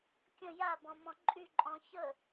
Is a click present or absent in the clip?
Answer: present